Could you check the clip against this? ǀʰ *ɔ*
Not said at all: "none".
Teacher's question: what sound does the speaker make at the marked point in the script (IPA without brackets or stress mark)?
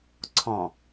ɔ̃